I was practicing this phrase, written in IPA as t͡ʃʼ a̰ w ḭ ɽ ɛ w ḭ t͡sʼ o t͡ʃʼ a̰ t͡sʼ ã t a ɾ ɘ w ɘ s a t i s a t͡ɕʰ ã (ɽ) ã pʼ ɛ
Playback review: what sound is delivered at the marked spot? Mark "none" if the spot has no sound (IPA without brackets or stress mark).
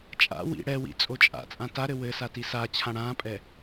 ɽ